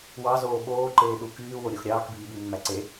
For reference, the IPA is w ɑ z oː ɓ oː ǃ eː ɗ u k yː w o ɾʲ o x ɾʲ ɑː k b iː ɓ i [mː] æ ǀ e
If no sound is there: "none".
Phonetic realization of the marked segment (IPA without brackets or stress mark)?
mː